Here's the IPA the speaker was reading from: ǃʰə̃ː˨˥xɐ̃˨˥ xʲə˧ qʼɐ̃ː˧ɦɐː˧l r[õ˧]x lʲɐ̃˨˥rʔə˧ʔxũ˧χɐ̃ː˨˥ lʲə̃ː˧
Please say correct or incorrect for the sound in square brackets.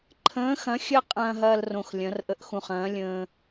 correct